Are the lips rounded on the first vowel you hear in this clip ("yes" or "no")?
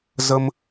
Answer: no